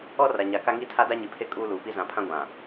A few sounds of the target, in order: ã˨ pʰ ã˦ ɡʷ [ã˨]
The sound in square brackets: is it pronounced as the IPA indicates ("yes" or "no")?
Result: yes